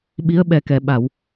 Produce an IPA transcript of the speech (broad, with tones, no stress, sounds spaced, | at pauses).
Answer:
ɓ i˧˥ ə̯ ɓ ɛ˨˩ k ɛ˨˩˨ ɓ a˨˩˨ w